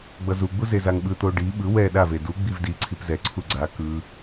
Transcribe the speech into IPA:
ɡ͡b ʌ z u ɡ͡b u z e z a ŋ ɓ ɯ t̪ o ɖ i ɓ ɯ w ɛ ɗ a v e d u ɡ͡b i v d i ǀʰ i p z ɛ ǀʰ u ɡ͡ǀ a k ɯ

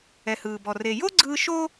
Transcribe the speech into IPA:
ɛ˩ h ɯː˩ b ɔ˩ r e˩ j o˥ ɡ͡ǀ ɯː˧ ʃ o˥

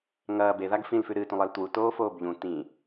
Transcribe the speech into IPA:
ŋ ɐː b e ð a ɡ f ĩ l f ʉ ɾ ɨ t ũ lˠ e l t w u t oː f oː b ʎ ũ t ĩ

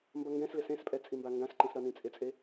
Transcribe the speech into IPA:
m b ʌ ŋ ɡ ɛ̃ s l ɪ s ẽ s pʼ ɛ t͡sʼ i m b a ŋ ɡ ã s ǃ ĩ s ɾ ʌ n ĩ t͡sʼ ɪ t͡sʼ e

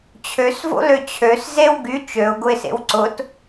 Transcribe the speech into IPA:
t͡ɕʰ ø s v o̰ l ø t͡ɕʰ ø s z e w ɡ y t͡ʃ ø ʊ̯ ɡ ʊ ɪ̯ s ḛ w ǀ ʊ t

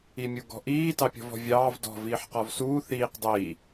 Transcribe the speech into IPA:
i mʲ u ɡ ɔ̤ ʔ iː t ɑ pʲ ɔ̤ v ɔ̤ vʲ ɑː v d ɔ̤ v iː ħ q ɔ v s uː θ iː q dˤ iː

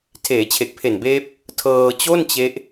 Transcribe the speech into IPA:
tʰ eː˩˦ t͡ɕʰ e˨˩ k̚ pʰ e˨˩ n b eː˦˥ p̚ | tʰ ɤː˧ t͡ɕ o˥˩ n t͡ɕ e˦˥ ʔ

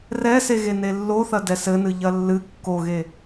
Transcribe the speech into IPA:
r ɛ s e ɣ e n e lː o θ ɐ d ɛ s ɘ n ɨ ʎ ɐ lː ɨ kː o ɣ e

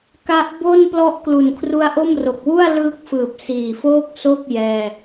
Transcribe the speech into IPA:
k a˦˥ ʔ b o˥˩ n p l ɔ˦˥ ʔ k l u˨˩ n kʰ r u˦˥ a̯ ʔ o˥˩ m r o˨˩ k̚ w u˥˩ a̯ l ɯː˦˥ k̚ f ɯː˨˩ p̚ s iː˨˩ f oː˥˩ k̚ s o˥˩ k̚ j ɛː˧

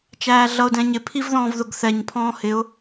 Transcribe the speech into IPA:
t͡ʃ æː ɮ ʌ ʊ̯ d ɛ̃ ɲ ɪ pʰ i v ð ɔ̃ː v ð ʊ ɡ θ ɛ ɲ pʰ ɔ̃ː h ɪ ʊ̯

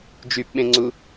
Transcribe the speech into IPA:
d͡ʒ y p ɓ ẽ ŋ͡ǀ u

